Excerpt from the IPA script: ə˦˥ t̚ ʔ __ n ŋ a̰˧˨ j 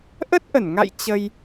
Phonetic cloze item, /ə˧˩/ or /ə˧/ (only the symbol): ə˧˩